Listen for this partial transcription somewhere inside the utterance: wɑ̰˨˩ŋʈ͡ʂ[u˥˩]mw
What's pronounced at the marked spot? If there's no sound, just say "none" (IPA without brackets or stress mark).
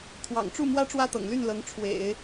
u˥˩